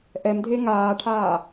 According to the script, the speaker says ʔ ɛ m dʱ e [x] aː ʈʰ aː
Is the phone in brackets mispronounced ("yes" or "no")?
yes